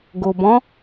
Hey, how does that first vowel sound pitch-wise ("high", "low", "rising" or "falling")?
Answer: low